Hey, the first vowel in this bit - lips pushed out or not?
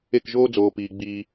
no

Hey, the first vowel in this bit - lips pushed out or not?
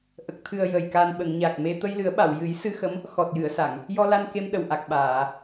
no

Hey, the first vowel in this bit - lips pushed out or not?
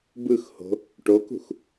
no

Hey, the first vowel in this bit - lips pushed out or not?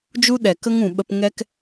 yes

